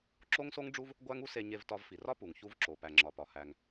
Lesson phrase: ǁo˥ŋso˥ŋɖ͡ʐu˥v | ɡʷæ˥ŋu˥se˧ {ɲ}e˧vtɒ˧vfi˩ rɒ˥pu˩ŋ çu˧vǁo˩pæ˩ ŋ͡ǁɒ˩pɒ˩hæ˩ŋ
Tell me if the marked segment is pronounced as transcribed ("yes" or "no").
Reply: yes